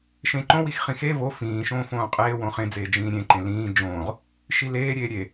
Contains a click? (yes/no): yes